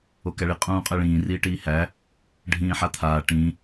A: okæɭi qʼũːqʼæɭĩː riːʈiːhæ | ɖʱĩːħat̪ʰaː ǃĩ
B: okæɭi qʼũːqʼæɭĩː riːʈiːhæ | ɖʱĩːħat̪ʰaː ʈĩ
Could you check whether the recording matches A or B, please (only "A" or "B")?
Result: B